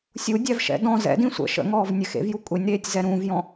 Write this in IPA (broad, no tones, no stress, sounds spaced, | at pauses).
sʲ u dʲ æ v ʃ ɛ̰ d ɔ̃ z ɛ̰ d ĩ sʷ ə̰ ʃ ə̰ ŋ ɔː v nʲ ɘ x ḛ v j u kʷʼ e nʲ ɾ eː tʲ z ɛ ɾ ũː v j ɔ̃